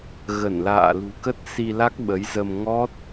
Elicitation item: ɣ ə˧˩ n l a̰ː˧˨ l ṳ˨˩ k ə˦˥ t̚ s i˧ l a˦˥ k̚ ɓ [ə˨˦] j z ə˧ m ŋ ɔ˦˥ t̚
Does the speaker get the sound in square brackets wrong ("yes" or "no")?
no